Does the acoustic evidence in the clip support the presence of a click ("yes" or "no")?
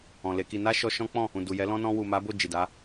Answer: no